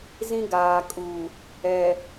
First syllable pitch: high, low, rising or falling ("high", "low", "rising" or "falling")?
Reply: high